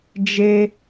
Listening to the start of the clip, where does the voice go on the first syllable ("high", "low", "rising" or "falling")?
high